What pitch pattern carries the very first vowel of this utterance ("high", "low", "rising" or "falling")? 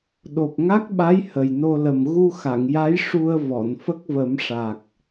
low